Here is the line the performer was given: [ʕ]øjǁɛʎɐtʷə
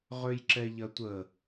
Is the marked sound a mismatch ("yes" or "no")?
yes